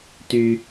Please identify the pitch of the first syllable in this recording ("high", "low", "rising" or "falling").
low